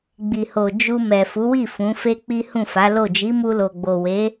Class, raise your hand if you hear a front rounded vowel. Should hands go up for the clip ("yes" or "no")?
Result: no